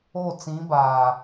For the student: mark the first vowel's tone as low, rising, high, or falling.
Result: falling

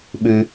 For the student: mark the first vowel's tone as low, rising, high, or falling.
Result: low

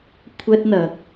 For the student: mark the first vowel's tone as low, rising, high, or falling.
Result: high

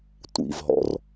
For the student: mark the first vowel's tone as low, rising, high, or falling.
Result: low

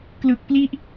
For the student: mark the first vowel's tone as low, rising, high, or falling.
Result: low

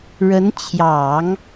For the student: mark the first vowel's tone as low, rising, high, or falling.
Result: rising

